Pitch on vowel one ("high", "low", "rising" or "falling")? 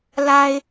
low